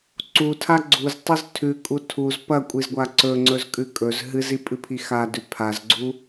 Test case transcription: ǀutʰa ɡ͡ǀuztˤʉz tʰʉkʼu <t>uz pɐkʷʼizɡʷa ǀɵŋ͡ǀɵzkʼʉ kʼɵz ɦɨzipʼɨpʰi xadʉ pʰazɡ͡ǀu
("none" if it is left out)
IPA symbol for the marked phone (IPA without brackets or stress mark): tʰ